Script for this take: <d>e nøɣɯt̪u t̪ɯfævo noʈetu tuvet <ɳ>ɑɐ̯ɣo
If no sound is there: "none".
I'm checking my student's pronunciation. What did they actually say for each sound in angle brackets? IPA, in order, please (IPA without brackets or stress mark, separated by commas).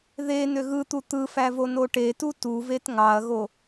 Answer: ð, ŋ